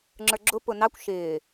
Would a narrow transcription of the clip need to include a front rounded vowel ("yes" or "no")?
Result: no